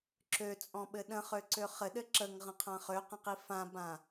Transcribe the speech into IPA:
ǁøt͡sʼɔ̃ɓɘ ɗə̃χøǀø χɘɗɘ ǁəŋʁə̃qʰã χøqə̃qi fãbã

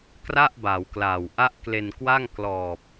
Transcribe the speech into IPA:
kra˥˩ʔbaː˩˦wklaː˨˩w ʔa˦˥ʔ kle˧nkwa˥˩ŋ klɔː˨˩p̚

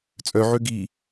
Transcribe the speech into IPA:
t͡sʼœʕø ɡi

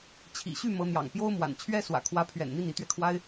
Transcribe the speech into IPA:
t͡ɕʰḭ˨˩ɕy˥˩ mɤ˧˥n̪jɑ̰˨˩ŋ pjo˥ʊ̯mwa̰˨˩n t͡ɕʰɥɛ˥swä̰˨˩ kʰwä˧˥pʰɥɛ̰˨˩nn̪i˥˩n i˧˥t̪ɥɛ˧kʰwa˥ɪ̯

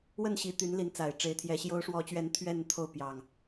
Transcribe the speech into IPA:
wə˥˨nɕi˨˦t̪y˨˦nli˨˦n t͡sa˨˩ɪ̯ʈ͡ʂe˨˦ɪ̯t̪ʰjɛ˨˦ ɕjo˨˦ʊ̯ʂwɔ˨˦t͡ɕɥɛ˨˦n t̪ʰɥɛ˥˨nt̪ʰo˥˨ʊ̯ pjɑ˨˩ŋ

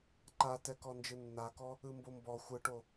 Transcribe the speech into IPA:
ǃatɛ kɔnd͡ʒɯnːakɔ | ɯmbombɔ xʷɯʈo

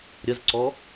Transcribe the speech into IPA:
ɾʲɐzǀɔ

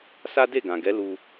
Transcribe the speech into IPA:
sa˦de˦˨ɡã˨ɡɛ˨˦ lu˧

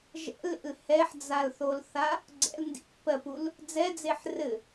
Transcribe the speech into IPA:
ʒɛ̰lḛl hɛħd͡zalθolθa | ɡ͡ǀɛ̰l ndḭpːɜpul | d͡zɛd͡zeħ rɘ

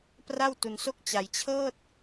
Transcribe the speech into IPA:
pra˥˩wtu˧nso˥˩k̚ t͡ɕa˧j t͡ɕʰɤː˥˩t̚

